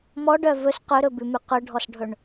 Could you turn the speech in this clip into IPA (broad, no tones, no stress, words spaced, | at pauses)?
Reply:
mɔɖœ vɵs qɵɾɵbʉmʉ qɵɖʱɔsɖʱɵɳ